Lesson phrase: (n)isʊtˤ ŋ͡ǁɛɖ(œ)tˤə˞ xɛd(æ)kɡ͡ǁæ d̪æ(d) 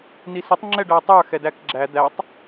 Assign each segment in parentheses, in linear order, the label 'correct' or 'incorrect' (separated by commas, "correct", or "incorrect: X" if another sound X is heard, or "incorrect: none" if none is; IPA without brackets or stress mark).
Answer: correct, incorrect: æ, correct, incorrect: tˤ